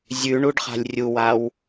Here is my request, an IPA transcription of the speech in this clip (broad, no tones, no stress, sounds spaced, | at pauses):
zʲ ʉ ɳ u ɖ χ a̤ lʲ rʲ u w a w